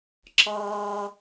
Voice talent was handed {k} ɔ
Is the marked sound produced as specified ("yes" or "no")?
no